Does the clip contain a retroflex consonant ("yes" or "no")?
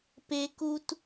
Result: no